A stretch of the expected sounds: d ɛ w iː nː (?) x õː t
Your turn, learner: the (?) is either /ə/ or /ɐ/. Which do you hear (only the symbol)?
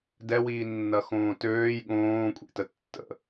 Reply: ɐ